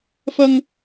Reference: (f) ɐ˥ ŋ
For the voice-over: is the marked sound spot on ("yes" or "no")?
yes